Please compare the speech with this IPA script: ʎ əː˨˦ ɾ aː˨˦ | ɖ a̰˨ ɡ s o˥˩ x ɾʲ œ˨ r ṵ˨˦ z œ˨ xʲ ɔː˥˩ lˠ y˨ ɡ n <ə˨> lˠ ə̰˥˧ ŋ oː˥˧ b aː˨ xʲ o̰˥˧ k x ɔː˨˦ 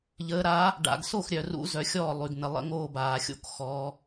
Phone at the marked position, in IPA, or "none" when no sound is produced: ə˨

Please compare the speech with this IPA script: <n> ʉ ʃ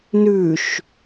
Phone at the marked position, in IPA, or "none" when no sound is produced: n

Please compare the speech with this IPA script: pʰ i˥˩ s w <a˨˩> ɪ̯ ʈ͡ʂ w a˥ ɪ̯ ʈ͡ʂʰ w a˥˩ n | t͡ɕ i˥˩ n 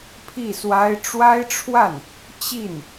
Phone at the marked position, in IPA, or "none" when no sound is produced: a˥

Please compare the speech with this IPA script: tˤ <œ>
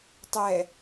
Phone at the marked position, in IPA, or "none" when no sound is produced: ɛ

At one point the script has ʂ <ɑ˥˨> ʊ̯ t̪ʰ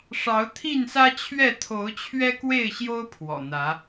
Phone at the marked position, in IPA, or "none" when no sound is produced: ɑ˨˦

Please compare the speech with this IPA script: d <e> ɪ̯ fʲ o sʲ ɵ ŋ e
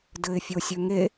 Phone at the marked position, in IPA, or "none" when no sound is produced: ɘ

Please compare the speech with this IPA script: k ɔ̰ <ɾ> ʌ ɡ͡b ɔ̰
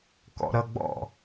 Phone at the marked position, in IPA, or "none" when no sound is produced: ɾ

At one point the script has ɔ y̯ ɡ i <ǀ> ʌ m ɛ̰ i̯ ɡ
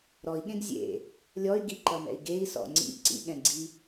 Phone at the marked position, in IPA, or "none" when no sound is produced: ǃ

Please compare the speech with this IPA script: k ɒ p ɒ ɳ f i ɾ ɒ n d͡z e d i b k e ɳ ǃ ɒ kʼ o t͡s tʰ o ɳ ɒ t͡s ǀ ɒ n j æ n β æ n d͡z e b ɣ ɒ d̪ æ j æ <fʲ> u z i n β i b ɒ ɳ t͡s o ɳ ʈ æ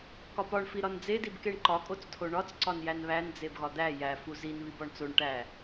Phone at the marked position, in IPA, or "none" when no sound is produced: f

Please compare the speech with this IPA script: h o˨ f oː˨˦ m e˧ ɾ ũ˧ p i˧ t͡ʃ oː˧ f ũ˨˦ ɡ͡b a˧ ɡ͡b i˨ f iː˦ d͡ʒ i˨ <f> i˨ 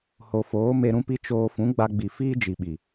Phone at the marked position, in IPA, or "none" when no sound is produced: ɓ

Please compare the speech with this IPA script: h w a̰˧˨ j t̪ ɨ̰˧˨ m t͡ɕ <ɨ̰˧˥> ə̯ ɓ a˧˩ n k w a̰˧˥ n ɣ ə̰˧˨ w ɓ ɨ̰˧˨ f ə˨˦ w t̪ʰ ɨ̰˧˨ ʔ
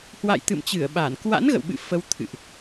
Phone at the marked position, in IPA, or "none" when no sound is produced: ɨ˧˩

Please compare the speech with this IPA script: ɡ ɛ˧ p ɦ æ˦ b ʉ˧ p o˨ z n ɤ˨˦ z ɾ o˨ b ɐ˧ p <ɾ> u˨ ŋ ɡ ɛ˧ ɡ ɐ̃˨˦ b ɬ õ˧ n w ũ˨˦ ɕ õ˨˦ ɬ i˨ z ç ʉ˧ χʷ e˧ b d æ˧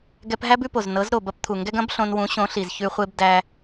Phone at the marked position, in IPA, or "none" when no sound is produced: t̪ʰ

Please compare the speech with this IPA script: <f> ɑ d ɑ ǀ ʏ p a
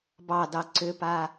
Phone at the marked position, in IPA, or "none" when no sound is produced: b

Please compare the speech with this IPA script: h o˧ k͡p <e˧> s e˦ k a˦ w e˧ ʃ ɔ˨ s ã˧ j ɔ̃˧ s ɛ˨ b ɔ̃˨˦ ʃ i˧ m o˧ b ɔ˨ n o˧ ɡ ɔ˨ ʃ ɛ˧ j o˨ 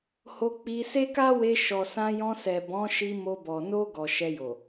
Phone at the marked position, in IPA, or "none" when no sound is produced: i˧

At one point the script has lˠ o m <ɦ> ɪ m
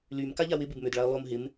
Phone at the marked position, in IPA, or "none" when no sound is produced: ɦ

